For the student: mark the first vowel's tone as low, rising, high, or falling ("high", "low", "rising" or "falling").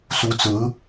rising